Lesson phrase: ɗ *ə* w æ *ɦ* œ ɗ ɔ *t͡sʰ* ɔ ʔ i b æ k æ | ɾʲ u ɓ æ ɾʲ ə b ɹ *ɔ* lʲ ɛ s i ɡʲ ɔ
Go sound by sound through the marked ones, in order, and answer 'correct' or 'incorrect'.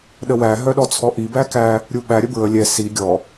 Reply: correct, correct, correct, incorrect

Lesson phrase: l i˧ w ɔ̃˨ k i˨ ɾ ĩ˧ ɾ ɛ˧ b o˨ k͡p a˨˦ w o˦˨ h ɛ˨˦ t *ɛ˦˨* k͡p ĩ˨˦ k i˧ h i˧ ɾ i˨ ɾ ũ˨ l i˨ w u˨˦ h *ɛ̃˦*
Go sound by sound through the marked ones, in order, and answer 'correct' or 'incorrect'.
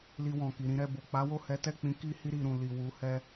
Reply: correct, incorrect

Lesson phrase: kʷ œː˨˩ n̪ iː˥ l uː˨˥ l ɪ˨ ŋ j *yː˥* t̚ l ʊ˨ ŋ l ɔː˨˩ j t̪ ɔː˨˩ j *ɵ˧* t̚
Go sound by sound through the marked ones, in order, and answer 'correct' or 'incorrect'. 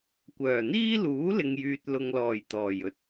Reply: incorrect, incorrect

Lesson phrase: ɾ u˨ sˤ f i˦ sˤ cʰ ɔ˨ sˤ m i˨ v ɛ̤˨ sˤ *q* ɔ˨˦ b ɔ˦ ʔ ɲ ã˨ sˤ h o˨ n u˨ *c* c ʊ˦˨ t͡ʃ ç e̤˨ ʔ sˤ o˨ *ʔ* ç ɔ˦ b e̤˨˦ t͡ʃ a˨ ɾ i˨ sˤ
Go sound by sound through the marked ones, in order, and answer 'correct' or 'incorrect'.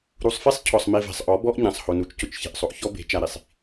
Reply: incorrect, incorrect, correct

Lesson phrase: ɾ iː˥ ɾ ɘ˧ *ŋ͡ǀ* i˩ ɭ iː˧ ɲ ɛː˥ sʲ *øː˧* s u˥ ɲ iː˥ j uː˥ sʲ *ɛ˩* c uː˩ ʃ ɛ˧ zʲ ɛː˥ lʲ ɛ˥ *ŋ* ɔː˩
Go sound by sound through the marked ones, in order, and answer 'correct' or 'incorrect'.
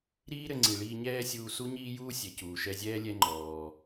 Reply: correct, incorrect, correct, incorrect

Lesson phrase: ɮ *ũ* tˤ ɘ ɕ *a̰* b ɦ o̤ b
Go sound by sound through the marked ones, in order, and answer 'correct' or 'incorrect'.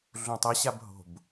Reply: correct, incorrect

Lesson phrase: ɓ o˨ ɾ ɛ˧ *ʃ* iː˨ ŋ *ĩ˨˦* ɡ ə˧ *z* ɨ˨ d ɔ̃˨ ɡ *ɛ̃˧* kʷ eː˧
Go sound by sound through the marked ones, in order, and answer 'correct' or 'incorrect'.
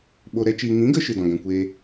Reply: incorrect, correct, incorrect, incorrect

